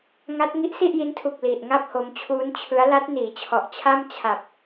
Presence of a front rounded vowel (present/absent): absent